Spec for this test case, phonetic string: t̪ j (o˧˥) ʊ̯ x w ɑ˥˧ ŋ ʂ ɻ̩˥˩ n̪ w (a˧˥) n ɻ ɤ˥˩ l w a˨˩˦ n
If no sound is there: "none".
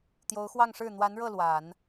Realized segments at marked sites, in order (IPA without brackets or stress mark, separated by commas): o˧˥, a˧˥